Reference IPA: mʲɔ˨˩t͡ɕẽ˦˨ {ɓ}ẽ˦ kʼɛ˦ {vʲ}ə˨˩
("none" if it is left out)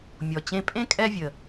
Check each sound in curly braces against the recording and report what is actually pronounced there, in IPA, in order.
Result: pʼ, vʲ

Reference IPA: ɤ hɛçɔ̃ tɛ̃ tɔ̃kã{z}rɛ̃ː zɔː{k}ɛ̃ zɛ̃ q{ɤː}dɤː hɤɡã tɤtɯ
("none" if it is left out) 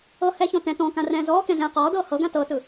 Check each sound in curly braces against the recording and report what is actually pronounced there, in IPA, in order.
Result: none, k, ɔː

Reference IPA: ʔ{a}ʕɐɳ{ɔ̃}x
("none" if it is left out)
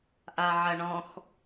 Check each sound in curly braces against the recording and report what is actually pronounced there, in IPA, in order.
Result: a, ɔ̃

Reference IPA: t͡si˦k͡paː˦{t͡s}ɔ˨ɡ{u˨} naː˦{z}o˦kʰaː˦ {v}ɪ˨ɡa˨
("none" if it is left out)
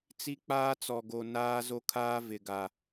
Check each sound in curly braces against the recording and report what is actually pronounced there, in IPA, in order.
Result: t͡s, o˨, z, v

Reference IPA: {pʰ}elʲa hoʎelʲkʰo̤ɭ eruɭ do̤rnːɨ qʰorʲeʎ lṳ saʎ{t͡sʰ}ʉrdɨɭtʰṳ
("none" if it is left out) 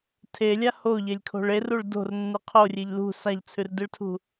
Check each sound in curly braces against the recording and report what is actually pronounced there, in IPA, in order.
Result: tʰ, t͡sʰ

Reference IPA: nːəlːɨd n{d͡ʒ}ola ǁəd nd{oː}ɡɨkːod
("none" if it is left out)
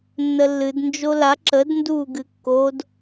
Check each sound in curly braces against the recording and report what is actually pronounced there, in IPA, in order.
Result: d͡ʒ, uː

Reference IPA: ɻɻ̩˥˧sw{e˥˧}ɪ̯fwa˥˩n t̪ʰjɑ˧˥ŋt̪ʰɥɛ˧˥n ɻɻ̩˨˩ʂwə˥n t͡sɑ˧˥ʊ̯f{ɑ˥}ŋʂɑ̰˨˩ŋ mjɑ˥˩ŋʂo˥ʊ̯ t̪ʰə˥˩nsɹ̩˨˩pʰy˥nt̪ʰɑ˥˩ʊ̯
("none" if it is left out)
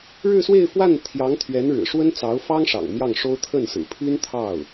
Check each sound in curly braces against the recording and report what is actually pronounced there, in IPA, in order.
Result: e˥˧, ɑ˥

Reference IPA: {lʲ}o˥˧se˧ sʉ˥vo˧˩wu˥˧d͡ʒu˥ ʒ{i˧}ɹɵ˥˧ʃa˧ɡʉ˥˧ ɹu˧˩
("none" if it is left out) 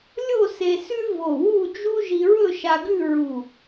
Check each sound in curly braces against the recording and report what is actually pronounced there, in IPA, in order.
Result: lʲ, i˧

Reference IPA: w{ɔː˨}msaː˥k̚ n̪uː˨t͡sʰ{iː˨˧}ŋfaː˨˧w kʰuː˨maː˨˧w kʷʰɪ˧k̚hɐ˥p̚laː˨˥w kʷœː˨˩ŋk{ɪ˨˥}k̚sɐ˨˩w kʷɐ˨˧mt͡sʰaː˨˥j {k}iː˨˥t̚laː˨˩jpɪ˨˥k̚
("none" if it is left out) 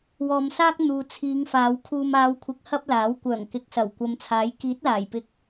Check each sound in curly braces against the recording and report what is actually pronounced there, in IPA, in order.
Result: ɔː˨, iː˨˧, ɪ˨˥, k

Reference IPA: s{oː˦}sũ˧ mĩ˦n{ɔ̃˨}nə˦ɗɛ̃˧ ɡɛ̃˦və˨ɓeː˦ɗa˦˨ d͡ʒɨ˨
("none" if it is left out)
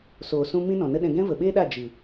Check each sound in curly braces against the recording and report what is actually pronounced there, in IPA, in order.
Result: oː˨, ɔ̃˨

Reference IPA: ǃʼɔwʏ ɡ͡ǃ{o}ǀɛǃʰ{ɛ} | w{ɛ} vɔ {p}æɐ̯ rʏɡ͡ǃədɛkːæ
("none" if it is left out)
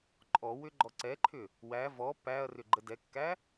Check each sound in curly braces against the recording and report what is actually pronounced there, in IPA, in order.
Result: ɔ, ʏ, æ, p

